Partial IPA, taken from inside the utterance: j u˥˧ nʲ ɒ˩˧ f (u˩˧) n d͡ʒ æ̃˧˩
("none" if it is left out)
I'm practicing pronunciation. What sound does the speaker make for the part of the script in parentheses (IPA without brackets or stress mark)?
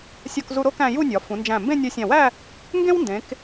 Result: ũ˩˧